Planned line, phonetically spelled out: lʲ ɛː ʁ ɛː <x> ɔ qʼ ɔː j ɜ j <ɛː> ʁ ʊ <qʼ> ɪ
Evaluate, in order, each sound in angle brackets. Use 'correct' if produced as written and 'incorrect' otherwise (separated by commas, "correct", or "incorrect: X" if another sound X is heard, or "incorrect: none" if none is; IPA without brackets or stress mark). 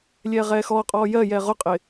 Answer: correct, correct, correct